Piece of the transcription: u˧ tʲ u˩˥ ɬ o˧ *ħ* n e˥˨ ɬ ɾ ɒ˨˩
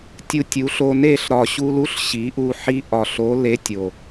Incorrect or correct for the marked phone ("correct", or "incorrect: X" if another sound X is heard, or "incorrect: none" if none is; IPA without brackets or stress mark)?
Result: incorrect: none